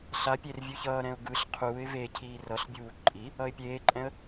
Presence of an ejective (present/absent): present